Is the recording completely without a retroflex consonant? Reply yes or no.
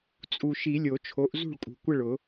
no